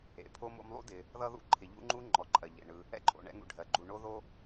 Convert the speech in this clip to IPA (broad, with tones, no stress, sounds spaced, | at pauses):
ḛ˩ pʰ o˦ m o̰˦ m lˠ ṵ˥ d ɪ˨ | ð ʌ˥ ð ṵ˥ ǃʰ ɪ˨ ʎ ṵ˥ ŋ͡ǃ u˥ ŋ͡ǃ ɔ˩ ǃʼ ɜ˩ ʎ ḛ˩ ɳ ɯ˨ | ɛ̰˥ ǃʼ o̰˨ ɳ ɛ̰˦ ŋ ṵ˨ ɖʱ ɜ˩ ɡ͡ǃ u˨ ɳ o˥ ð o˥